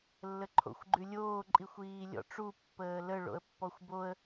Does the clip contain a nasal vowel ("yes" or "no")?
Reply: no